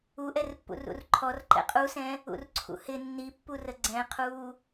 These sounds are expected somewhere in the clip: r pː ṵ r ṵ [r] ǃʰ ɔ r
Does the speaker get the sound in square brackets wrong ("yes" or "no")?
no